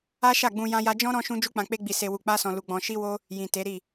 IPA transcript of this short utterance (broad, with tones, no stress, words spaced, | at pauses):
a˦ʃa˦˨ɡ͡bũ˧ jã˦ja˦ d͡ʒɔ̃˦ ɾɔ̃˦ʃũ˦ d͡ʒu˦k͡pã˧k͡pe˦ɡ͡bi˧ se˧wu˧k͡pa˦sɔ̃˧ lu˧ɡ͡bɔ̃˧ ʃi˦wo˦ | jĩ˨te˨˦ɾi˦˨